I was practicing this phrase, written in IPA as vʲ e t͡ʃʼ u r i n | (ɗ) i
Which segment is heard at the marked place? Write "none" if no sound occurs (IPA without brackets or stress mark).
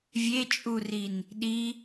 ɗ